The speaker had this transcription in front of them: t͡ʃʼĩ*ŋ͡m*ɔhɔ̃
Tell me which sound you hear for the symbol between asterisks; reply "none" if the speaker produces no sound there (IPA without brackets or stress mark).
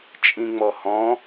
ŋ͡m